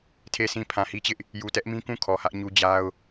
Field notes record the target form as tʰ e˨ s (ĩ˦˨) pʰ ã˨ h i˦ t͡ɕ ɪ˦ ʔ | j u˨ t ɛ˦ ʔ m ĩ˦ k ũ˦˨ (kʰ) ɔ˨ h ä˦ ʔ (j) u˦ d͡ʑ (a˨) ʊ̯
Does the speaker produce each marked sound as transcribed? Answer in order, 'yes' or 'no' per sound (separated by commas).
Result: no, yes, no, no